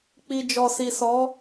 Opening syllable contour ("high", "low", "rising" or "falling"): low